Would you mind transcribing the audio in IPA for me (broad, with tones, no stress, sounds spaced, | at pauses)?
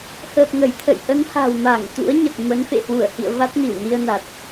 h əː˨˩ p̚ ŋ ə˧˩ j t̪ʰ ə̰˧˨ j ʔ ə˨˦ n h a̤˨˩ w m a˧˩ ŋ t̪ ṵ˧˥ ə̯ ɲ ə˨˩ t̚ m ə˨˦ n f ḛ˧˨ h w u˧˩ ə̯ h ḭ˧˨ ə̯ v a˦˥ t̚ n i˧˩ w n i˧ ə̯ n a˨˩ t̚